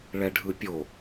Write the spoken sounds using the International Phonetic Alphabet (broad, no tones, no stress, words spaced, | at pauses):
ɭɛɖʱɯpʲo